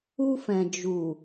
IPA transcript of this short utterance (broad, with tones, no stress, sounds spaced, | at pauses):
u˧ f ɛ̃˨ d͡ʒ u˨